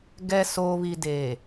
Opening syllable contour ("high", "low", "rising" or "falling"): low